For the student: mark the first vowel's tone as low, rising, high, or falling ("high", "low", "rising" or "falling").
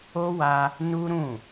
high